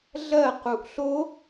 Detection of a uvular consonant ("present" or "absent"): present